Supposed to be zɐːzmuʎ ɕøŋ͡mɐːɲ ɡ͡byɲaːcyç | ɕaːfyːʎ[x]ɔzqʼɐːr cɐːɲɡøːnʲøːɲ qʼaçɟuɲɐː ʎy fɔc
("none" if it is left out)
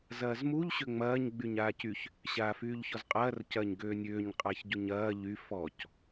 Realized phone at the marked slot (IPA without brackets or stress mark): ç